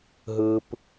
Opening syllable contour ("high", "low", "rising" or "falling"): high